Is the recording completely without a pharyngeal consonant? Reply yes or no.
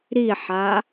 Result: no